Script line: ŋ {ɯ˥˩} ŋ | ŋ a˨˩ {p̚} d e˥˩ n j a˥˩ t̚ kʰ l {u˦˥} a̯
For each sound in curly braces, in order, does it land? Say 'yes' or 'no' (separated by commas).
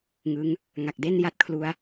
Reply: no, no, yes